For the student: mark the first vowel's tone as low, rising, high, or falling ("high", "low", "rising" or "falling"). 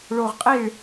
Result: low